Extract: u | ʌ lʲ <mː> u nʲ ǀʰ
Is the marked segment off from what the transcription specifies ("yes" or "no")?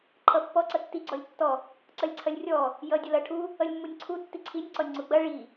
no